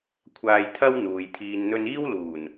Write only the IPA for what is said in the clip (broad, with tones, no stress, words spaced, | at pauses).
kʷʰaː˧jt̪ʰɐ˥w n̪uː˨jt̪ʰiː˧nn̪ɵ˥n iː˥wluː˨˩n